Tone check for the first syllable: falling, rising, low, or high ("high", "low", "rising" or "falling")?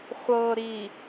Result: low